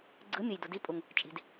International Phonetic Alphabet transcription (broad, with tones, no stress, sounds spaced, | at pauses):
ɡ͡ǀ ɯ˨˥ mʲ ɯ˩ j d u˩ d i˨˥ pʼ u˩ ŋ | t͡ʃʼ i̤˩ d